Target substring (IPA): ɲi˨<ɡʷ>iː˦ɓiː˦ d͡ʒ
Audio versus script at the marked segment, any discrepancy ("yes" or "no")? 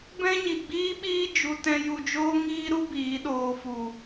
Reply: yes